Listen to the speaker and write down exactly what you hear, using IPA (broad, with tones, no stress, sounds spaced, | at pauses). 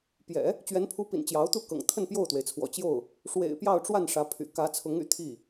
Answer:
p j ɛ̰˨˩˦ | t͡ɕ ɥ ɛ˧˥ n pʰ u˧˥ p ḭ˨˩ n t͡ɕ j ɑ˧˥ ʊ̯ t̪ u˥˩ k ɤ̰˨˩ ŋ t̪ʰ ə˥˧ n p j o˥˩ ʊ̯ t̪ w e˩ ɪ̯ t͡sʰ w ɔ̰˨˩ t͡ɕ j o˥˩ ʊ̯ | ʂ w ḛ˨˩ ɪ̯ p j ɑ˥˧ ʊ̯ ʈ͡ʂ w a˥˩ n ʂ ä˧˥ pʰ y̰˨˩ k ä˧˥ t͡sʰ ʊ˧˥ ŋ y̰˨˩ t̪ʰ i˥˩